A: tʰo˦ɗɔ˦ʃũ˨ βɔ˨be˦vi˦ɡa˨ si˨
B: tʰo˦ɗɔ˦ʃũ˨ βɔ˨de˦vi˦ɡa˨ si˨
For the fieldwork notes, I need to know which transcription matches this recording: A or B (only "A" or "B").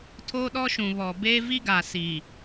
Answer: A